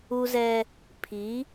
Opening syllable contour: high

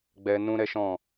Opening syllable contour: high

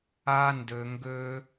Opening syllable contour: high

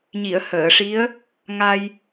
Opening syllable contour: low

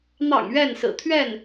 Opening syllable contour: low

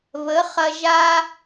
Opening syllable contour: rising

